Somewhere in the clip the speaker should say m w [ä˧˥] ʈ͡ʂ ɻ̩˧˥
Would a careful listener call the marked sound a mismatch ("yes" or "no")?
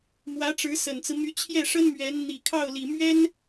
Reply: no